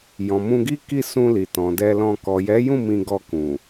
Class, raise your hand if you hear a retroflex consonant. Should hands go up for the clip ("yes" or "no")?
no